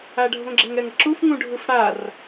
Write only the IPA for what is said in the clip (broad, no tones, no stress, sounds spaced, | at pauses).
a ɖʱ õ ɡ͡ǁ ɛ ŋ ɛ ŋ ʌ ǁ u f ŋ ũ ɖʱ ɯ f ɽ a r